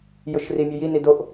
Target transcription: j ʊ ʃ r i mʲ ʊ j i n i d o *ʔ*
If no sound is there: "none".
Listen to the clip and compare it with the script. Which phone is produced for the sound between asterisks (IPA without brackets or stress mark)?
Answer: ʔ